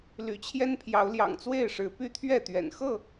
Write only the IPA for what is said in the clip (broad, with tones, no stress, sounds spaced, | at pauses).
l y̰˨˩ t͡ɕʰ j ɛ˦ n pʰ j ɑ˨˦ ʊ̯ l j ɑ̰˨˩ ŋ t͡s w e˥˨ ɪ̯ ʂ ɻ̩˨˦ p y˦ t̪ʰ ɥ ɛ˥˨ t̪ ɥ ɛ̰˨˩ n x ɤ˥˨